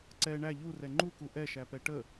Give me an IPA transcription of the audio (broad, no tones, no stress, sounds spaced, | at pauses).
ǀ ɛ ɳ æ ʎ u r ɛ ŋ͡ǃ u k u ʔ ɛ ʃ æ p ɛ ʈ ə